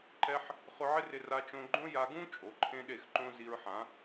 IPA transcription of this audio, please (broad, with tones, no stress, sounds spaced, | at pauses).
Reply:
ǃ ɛ˦ ħ | χ ʊ˧ ʕ ɪ˦ r ɪ˧ r a˧ t͡ʃ õ˧ ɡ͡ǃ õ˦ j a˧ ɡ ũ˦ t͡ʃʼ o˨˦ ǃʰ ẽ˦ ɗ e˦˨ x ǃ õ˦ z i˧ ɹ ħ ã˨˦